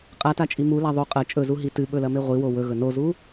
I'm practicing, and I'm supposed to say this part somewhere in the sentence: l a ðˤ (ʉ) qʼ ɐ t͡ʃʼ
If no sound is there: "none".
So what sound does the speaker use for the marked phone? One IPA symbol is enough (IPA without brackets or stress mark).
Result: ʉ